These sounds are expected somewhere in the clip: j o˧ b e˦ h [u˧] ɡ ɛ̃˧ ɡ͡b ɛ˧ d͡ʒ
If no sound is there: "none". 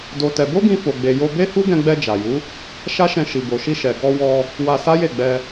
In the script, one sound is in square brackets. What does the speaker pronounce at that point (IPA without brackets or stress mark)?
u˦